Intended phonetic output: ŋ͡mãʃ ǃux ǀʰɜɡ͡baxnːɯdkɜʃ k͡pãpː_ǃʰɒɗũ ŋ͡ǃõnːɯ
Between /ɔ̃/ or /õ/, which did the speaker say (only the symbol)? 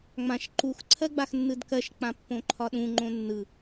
õ